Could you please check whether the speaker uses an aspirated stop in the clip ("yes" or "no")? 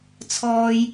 yes